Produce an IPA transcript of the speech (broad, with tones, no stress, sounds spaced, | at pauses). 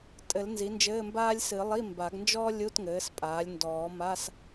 tʼ ɘ˨˩˦ l n z i˩˥ n d͡ʒ ɘː˧˥˧ m b aː˥ lʲ s ɨ˨˩˦ lˠ i˧˥˧ m b a˨˩˦ ɡ n d͡ʒ ɔː˥ lʲ u˧˥˧ t ŋ ɘː˩˥ s pʼ aː˩˥ lʲ n d ɔː˨˩˦ m a˧˥˧ s